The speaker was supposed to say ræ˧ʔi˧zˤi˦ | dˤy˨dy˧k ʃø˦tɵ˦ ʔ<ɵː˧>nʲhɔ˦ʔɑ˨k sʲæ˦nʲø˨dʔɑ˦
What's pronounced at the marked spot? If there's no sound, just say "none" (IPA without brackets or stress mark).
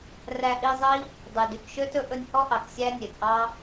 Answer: ɵ˧